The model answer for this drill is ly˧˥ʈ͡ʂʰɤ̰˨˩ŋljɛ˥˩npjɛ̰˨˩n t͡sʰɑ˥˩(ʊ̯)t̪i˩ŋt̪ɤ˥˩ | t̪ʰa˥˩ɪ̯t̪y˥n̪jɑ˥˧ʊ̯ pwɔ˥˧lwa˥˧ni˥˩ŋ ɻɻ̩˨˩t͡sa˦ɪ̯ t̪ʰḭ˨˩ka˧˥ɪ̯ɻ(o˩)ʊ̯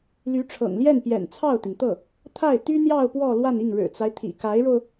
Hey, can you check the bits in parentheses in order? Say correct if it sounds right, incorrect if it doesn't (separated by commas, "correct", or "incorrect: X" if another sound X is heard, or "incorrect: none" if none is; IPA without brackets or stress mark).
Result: correct, incorrect: o˧